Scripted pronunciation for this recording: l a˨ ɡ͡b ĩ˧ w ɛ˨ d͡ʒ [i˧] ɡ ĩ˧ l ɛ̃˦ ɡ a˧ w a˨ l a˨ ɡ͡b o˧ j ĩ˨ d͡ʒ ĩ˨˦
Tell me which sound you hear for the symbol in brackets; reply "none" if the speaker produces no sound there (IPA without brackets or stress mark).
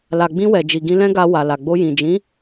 i˨